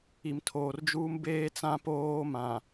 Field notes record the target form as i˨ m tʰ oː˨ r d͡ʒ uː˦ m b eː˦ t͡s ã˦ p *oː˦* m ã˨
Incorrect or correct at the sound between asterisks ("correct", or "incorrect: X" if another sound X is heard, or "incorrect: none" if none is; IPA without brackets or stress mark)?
correct